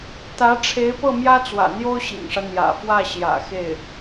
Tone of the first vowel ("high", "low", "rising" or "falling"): rising